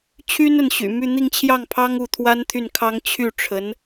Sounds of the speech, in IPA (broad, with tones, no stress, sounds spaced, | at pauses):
t͡ɕʰ y˥ n ə˥˩ n ɕ y̰˨˩ m y˥˧ n̪ i˥˧ ŋ t͡ɕʰ j ɑ˥˩ ŋ pʰ ɑ˥ ŋ u˥˩ t̪ʰ w a˥ n t̪ʰ y˥˩ n kʰ ɑ˥ ŋ t͡ɕʰ y˥˩ ʈ͡ʂʰ ə˧˥ n